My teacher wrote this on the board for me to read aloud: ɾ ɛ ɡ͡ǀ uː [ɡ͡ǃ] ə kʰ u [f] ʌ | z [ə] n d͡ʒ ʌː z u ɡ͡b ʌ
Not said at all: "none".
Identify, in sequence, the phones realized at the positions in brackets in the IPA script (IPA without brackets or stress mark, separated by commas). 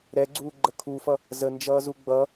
ɡ͡ǃ, f, ə